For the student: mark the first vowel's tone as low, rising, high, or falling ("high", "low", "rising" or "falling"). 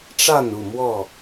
falling